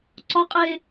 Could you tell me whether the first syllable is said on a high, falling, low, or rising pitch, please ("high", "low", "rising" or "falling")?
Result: high